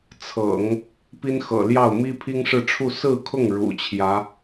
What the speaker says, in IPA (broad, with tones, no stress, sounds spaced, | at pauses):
t͡sʰ ɤ̰˨˩˦ ŋ | p i˥ n x ɤ̰˨˩ l j ɑ˥˩ ʊ̯ m i˥ pʰ i˥ ŋ ʂ ɻ̩˥˧ ʈ͡ʂʰ u˥˧ s ɹ̩˥˧ kʰ ʊ˥˩ ŋ ɻ ṵ˨˩ t͡ɕʰ j ä˧˥